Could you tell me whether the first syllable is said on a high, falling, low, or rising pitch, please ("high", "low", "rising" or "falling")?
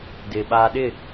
low